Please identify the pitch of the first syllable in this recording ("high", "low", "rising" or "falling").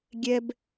high